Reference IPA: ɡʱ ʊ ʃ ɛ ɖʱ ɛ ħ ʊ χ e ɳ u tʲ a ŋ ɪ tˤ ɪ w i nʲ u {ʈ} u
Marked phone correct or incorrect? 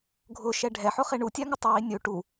correct